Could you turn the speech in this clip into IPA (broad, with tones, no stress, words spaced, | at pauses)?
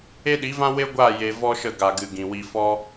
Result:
e˦ɗi˨˦vã˦ we˦ɡʷaː˦˨ je˧ vɔ˦ʃə˦˨ ɡa˨ɡɨ˨ ɡĩ˨wi˧fɔ˦